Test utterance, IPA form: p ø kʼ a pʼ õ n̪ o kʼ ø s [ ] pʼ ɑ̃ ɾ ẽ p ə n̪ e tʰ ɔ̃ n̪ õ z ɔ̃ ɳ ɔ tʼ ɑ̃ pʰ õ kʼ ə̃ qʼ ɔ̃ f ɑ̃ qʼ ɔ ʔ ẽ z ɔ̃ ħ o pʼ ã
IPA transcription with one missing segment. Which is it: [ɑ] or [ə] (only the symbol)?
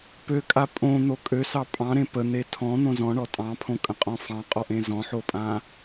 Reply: ɑ